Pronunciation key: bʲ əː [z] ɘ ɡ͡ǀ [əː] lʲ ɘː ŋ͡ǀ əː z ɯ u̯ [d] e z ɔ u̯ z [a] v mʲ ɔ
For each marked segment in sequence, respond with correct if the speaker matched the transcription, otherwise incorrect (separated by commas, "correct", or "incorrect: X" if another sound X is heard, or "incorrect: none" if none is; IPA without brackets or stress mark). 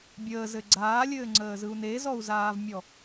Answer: correct, incorrect: aː, incorrect: n, incorrect: aː